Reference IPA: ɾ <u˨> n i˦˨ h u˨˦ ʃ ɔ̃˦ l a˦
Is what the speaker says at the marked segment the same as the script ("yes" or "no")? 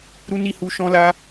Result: no